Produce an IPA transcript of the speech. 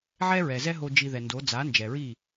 ʕ ɛ˦ ɹ ɛ˨ z ɛ˦ ɦ o˧ d͡ʒ i˧ ð ɛ˨ n d o˨˦ d͡z a˨˦ n d͡ʒ ɛ˨ ɹ i˦˨

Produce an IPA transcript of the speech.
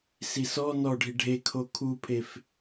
s i s ɔ n ɔ ɖʱ i ɖʱ e kʰ o kʰ u pʰ e f

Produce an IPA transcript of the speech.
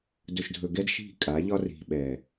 d ɵ˨ ʃ dʱ ɵ˨ ɡ ɛ˦ d ʃ i̤˦˨ kʼ a˨˦ ʎ ɒ˦ r i̤˨ ɓ ɛ˨

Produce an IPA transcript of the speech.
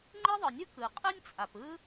ŋ͡ǃ e˥ ðˤ ɯ˩ nʲ ɯ˥ k ɯ˩ qʼ ɯ˥ nʲ t͡sʼ a˩ p ɯ˥

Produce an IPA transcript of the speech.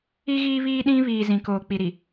i˦ ɣ iː˦ β iː˦ ɗ ĩ˦ β iː˨ z ĩ˨ k oː˨ k͡p i˨ ɾ i˨

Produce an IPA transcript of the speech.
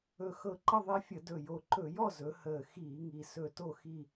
ɵ˨˩ x ɤ˧˩˧ ǃ ə˥˨ ðˤ e˦ fʲ ə˧˩˧ d ɵ˨˩ j o˨˩ ǃ ɵ˧˩˧ j ɔ˥˨ z ɵ˩˧ h əː˨˩ x iː˧˩˧ ŋ i˨˩ s ɵ˧˩˧ t o˥˨ x i˥˨

